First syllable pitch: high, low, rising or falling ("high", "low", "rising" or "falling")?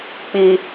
low